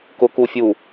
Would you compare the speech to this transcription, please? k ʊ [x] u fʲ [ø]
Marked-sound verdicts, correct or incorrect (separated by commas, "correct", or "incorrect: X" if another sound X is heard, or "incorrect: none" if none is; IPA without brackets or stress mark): incorrect: k, incorrect: u